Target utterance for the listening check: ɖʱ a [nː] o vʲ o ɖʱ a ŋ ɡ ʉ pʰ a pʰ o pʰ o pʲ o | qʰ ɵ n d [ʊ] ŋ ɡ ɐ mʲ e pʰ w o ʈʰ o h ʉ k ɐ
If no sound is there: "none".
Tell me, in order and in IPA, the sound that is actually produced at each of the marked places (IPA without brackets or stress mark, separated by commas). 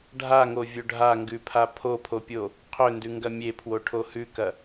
ŋ, ʉ